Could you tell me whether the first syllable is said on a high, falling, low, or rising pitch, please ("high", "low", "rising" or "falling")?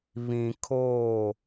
low